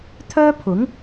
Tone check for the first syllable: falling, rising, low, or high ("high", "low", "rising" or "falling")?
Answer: high